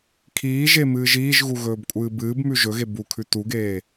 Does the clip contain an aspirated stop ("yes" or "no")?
yes